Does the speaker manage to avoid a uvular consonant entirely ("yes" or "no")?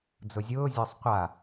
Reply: no